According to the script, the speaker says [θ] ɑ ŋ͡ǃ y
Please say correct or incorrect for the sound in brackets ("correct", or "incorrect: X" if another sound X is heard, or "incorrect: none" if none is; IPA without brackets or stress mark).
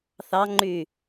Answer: correct